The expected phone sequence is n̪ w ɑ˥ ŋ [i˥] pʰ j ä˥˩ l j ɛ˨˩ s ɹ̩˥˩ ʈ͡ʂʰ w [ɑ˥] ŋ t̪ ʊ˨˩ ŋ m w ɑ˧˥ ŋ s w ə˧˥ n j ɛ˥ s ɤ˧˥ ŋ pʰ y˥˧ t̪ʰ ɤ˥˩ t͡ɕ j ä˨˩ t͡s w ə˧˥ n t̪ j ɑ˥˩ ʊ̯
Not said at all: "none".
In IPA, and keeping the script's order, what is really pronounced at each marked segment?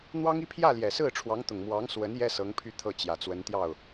i˥, ɑ˧˥

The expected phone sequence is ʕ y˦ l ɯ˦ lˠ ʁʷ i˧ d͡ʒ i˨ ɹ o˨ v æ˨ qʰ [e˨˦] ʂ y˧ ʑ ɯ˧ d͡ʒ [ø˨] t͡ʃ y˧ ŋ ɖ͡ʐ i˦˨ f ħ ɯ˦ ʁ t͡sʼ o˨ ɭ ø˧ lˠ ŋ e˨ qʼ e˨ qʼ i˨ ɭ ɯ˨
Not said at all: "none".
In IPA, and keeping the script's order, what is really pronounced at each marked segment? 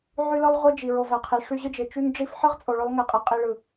e˨, e˨

